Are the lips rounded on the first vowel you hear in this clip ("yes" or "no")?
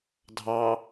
no